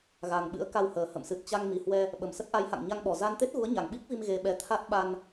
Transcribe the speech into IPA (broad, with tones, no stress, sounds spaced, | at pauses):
ɣ a˨˩ ŋ ɓ ɨ̰˧˥ ə̯ k a˧ w h əː˨˩ h ə̰˧˨ m s ɨ˨˩ t̚ t͡ɕ a˧ ŋ m i˨˩ h w ɛ˧ | ɓ ə˨˩ m s ə˦˥ t̚ ʔ a˨˦ j h a̰˧˨ ŋ ɲ a˧ ŋ ɓ ɔ˨˩ z a˧ n t̪ e˦˥ t̚ ɣ u˨˦ ə̯ ɲ a˨˩ ŋ ɓ i˦˥ k̚ v i˧ m ɣ e˧ ɓ ɛ˧ t̪ʰ a˦˥ t̚ ɓ a˧ n